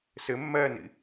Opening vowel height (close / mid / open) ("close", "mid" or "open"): close